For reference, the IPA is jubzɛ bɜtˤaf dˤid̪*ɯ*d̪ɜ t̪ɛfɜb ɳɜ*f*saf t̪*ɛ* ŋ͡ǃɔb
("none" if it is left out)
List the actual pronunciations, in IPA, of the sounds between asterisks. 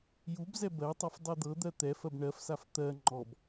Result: ɤ, f, ɜ

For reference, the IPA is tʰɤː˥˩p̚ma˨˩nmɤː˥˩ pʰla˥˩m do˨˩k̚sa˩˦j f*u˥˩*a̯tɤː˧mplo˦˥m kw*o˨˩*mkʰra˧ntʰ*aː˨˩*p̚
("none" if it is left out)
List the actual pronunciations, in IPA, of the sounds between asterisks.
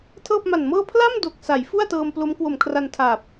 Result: u˥˩, o˨˩, aː˨˩

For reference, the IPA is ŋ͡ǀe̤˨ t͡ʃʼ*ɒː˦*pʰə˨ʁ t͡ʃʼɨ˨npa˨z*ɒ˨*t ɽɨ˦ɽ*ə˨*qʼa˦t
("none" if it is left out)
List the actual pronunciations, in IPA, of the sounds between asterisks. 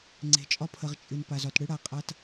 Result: ɒ˦, ɒ˨, a˨

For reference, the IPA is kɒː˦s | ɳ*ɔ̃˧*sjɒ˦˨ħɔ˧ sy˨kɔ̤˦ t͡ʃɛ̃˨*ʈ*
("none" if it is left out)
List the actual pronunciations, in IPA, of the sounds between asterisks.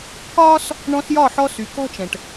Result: ɔ̃˧, ʈ

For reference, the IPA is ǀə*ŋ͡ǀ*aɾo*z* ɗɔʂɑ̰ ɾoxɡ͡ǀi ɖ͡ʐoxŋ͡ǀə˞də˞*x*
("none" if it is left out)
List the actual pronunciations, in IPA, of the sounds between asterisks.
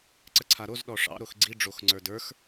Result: ǀʰ, z, x

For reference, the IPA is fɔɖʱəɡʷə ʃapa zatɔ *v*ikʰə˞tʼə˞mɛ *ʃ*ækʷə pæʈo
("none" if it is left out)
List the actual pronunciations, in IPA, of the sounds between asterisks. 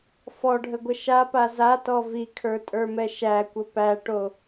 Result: v, ʃ

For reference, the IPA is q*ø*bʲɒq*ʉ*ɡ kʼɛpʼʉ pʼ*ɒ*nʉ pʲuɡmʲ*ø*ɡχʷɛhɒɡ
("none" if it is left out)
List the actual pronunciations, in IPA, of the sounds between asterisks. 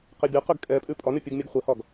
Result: e, ʉ, ɒ, u

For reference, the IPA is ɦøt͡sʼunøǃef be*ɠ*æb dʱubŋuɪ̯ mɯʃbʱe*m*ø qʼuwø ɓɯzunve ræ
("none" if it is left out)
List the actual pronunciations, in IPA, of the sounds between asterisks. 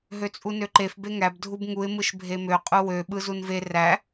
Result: ŋ, m

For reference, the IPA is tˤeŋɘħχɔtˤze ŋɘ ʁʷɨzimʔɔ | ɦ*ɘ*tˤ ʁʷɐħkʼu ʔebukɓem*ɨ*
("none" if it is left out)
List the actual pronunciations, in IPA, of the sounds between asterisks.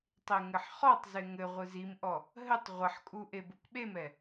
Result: ɘ, ɛ

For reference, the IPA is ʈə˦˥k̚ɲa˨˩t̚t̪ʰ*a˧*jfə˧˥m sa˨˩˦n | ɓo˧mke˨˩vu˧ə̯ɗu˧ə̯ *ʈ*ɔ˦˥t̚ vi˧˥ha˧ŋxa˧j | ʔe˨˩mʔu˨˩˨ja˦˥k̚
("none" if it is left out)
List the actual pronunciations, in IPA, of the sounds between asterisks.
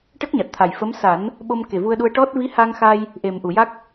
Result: a˨˩, ʈ

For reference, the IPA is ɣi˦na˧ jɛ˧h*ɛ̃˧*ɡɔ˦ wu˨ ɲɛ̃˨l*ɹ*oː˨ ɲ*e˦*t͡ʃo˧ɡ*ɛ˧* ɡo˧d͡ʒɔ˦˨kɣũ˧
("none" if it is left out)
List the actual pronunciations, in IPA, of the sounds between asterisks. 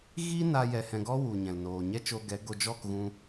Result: ɛ̃˧, n, ɛ˦, ɛ˨˦

